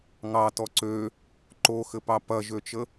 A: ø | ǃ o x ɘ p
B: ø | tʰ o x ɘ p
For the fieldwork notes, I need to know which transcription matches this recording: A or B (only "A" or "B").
A